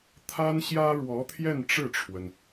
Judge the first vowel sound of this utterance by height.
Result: low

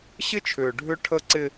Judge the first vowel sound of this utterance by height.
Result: high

